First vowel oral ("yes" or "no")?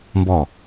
yes